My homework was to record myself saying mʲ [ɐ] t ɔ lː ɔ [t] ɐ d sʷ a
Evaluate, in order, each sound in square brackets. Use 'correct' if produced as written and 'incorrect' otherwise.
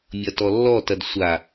correct, correct

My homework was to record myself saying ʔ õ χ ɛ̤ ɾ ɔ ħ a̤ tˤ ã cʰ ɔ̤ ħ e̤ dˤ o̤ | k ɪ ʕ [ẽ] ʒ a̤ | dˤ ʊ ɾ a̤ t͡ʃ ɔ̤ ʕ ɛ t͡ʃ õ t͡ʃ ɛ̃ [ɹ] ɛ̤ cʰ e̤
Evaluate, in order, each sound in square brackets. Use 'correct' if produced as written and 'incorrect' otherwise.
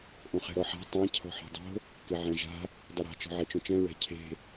incorrect: ɛ̃, correct

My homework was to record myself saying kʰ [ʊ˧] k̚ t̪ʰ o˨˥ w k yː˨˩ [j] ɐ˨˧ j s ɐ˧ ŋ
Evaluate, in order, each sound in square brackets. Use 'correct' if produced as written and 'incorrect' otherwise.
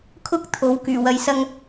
incorrect: ʊ˥, incorrect: w

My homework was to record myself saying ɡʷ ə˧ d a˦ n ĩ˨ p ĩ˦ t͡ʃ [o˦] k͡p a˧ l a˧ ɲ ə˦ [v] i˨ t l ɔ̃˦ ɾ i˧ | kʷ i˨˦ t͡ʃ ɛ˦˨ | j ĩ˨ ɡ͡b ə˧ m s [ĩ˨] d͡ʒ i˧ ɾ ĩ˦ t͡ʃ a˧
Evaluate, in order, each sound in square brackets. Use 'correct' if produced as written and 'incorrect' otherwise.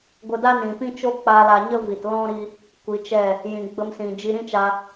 correct, correct, correct

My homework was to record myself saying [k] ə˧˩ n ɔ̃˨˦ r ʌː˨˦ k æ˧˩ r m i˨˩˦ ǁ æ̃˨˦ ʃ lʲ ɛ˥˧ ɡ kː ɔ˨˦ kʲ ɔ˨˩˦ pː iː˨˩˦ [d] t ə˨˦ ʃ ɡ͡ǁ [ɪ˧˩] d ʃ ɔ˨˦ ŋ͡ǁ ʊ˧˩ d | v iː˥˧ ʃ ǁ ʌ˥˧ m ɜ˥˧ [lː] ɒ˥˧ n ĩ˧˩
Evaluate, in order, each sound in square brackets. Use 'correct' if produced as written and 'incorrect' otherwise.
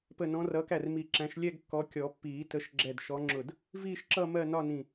incorrect: p, incorrect: none, incorrect: ɛ˧˩, incorrect: n

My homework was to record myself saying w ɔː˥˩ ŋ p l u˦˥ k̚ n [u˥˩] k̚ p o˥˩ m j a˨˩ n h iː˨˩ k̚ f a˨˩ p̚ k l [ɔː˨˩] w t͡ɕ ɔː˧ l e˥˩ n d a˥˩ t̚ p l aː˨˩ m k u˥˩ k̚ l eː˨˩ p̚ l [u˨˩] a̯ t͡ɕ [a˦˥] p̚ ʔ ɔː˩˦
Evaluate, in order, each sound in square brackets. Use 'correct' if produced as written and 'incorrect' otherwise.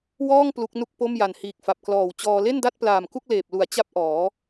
correct, correct, incorrect: u˩˦, correct

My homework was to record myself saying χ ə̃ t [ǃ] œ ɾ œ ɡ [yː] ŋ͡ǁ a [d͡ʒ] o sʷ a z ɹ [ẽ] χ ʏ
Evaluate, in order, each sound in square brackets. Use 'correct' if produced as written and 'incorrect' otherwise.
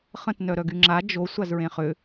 incorrect: n, incorrect: y, correct, correct

